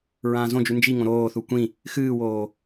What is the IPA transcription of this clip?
ɹ ãː z õ d͡ʒ ʉ n d͡ʒ i ŋ õ ɾ oː θ u kʷ ĩ | x ɨː w oː

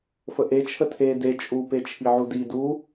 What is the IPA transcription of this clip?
f ə ʔ e t͡ʃʰ ə tʰ e d e t͡ʃʼ u p e t͡ʃʰ i ʕ u d i d u

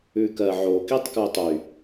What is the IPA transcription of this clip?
ʉ k ɜ ʕ o k i tˤ k ʉ tˤ y

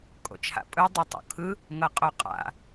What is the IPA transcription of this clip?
kʼ o̰ t͡ʃʰ a̰ pʼ ɯ dˤ u tˤ o̰ kʰ ɯ | ŋ ɤ qʼ o qʼ a̰

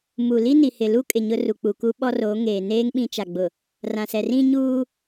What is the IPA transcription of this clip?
m u˨ l i˦ n i˨ h ɪ˨ l u˦ kʼ ɪ˨ ɲ ʊ˦ r u˨ k͡p u˨ k u˦ ɓ ɔ˦ r o˨˦ ŋ eː˨ n eː˦ ŋ ɓ ĩ˦ t͡ʃ a˨ ɡ͡b ʊ˨ | r ã˨ s ɛ˨ r ĩ˦ ɲ uː˦

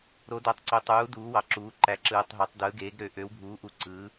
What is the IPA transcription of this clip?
ɾ o˩˥ d æ˨ tˤ ǀ ø˨ tˤ uː˩˥ d uː˩˥ w ɑ˨ ǁ uː˩˥ ǃ æ˩˥ ǁ ɯː˨ tˤ ɦ o˩˥ tˤ d ɯ˩˥ ɡ eː˩˥ ɡ ɾ ø˩˥ ʔ ø˩˥ w bʱ uː˩˥ ʔ u˨ ǀ ɯː˩˥

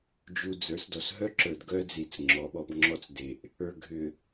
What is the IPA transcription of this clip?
d͡ʒ u˨ d͡z ə˞˨˦ s d ɔ˨ s ɦ œ˦ ǁ ə˞˨ d ɡ œ˦ d͡z i˨ t͡s ŋ͡ǁ ɔ˨˦ ɓ ɔ˨˦ b ŋ͡ǁ ɔ˦ t͡s d e˨ ʔ | ə˞˨ ɡʱ ʏ˨

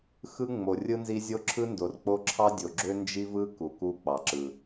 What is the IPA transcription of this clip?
x ɯ˦ ŋ͡m o˨ rʲ ɯ˦ n z i˦ zʲ o˦ ǁʰ ɯ˦ n d o˨ r k͡p o˦ ǁʰ ɑ˦ dʲ o˨ ɡ͡ǁ ø˦ n d͡ʒ i˦ v ɯ˦ k u˨ k u˦ k͡p ɑ˨ ǁ ɯ˨

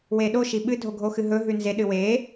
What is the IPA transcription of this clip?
w e ɗ o ʃ i ɓ ɨ dʱ o ɡʱ o x ɨ ɦ ɵ ɦ ʉ n z e ɗ ɨ w e

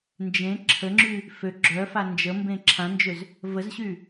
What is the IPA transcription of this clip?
n d͡ʒ ẽ ǁʰ ə ŋ͡ǁ y | f ø ɡ͡ǁ œ f a n d͡ʒ ə m b ẽ ǁʰ ã n d͡ʒ ø z | v ə z ɕ y

